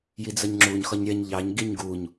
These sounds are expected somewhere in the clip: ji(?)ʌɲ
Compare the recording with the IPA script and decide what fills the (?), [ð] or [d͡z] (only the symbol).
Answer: d͡z